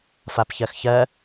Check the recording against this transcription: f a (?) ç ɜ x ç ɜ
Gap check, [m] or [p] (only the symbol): p